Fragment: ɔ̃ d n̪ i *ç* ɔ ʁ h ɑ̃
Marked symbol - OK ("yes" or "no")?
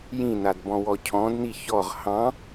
yes